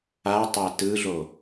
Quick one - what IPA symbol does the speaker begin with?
a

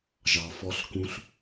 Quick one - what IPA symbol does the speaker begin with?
ʒ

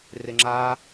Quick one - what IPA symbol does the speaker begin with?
r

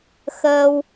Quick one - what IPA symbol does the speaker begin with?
x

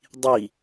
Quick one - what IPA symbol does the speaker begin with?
dˤ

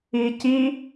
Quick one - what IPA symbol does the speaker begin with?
iː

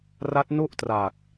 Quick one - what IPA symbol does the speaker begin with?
r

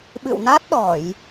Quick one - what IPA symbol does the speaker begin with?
ɓ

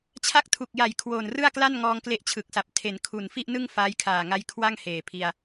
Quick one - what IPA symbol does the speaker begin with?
t͡ɕʰ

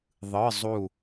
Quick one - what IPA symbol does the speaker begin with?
ðˤ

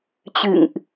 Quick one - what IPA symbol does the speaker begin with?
t͡ɕ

